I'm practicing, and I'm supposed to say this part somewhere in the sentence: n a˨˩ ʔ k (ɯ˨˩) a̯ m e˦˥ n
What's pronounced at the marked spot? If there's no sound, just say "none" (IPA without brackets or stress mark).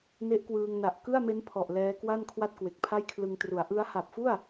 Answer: ɯ˥˩